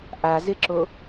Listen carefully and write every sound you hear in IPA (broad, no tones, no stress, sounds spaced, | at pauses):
ʔ a z ɪ ǁ o